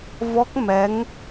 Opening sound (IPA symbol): v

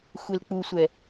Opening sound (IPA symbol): xʷ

